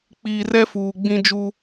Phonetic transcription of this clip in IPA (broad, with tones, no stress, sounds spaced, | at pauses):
k͡p iː˨ r ɛ˦ f uː˨ ɡ͡b ĩ˦ d͡ʒ u˦